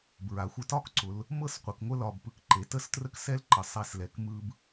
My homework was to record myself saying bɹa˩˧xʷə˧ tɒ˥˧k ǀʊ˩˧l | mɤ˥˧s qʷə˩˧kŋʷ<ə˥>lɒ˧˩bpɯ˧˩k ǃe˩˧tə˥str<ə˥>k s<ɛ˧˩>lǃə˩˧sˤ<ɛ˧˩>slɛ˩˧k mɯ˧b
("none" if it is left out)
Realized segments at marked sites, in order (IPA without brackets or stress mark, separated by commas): ə˥, ə˥, ɛ˥, ɛ˧˩